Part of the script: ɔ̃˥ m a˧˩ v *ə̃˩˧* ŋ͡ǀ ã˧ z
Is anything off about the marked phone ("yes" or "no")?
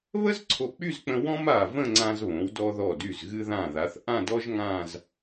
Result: yes